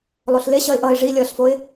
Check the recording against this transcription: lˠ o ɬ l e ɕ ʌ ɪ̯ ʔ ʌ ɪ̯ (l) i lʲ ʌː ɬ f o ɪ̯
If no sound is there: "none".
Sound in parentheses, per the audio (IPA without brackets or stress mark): ʐ